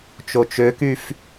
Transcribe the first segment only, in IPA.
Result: t͡ʃ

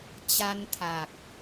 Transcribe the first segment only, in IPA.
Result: t͡ɕ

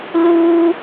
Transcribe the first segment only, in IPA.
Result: l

